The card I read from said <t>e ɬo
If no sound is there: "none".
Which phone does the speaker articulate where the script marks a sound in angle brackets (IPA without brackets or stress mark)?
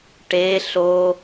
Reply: ʈ